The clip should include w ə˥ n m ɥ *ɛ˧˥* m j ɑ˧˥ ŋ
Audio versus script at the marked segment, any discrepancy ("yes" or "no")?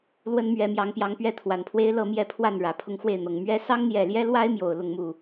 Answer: no